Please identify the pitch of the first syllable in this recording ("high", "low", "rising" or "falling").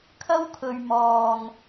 high